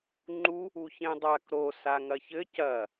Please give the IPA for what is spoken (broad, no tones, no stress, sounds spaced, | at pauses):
ŋ͡ǃ u | u ç ẽ dˤ a k ɾ o s a ŋ ɐ ç ɘ c ɐ